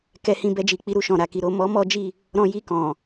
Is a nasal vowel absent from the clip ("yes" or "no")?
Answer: no